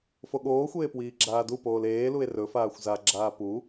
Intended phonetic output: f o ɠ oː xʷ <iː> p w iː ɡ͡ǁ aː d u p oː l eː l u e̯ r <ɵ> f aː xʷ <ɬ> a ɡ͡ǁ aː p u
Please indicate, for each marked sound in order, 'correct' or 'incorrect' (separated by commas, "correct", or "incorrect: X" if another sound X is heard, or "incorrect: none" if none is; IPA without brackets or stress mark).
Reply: incorrect: eː, correct, incorrect: z